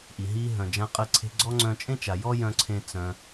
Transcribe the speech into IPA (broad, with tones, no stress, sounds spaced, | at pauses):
ʔ i˩ ɦ i˧ ɦ œ̃˩ d͡ʒ ã˧ qʼ ə˧ ǀʰ e̤˧ ɡ͡ǀ ɔ˥ ŋ͡ǀ œ̃˧ t͡ʃʼ ẽ˥ t͡ʃ a˩ j ɔ˥ j œ̃˧ ǀʰ ẽ˧ t͡s œ̃˩